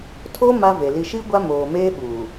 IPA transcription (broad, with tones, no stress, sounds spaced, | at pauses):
tʰ o˦ m a˦ v e˨ l i˨ ʃ i˦ ɡʷ a˦ m oː˨ m eː˦ ɓ uː˨